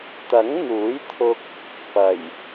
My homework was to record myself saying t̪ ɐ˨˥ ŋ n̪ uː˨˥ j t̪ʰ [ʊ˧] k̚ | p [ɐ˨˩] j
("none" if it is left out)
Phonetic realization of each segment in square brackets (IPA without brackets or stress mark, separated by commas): ʊ˧, ɐ˨˩